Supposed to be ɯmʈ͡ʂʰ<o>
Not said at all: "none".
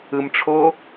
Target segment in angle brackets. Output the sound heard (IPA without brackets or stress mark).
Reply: o